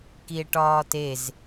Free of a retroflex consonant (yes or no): no